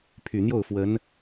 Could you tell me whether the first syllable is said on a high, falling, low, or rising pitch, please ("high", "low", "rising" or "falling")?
low